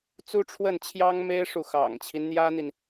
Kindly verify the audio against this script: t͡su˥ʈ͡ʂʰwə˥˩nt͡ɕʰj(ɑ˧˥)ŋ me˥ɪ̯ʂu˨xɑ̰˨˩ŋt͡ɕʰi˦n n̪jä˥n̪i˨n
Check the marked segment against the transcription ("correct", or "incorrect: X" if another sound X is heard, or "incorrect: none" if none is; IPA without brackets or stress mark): incorrect: ɑ˥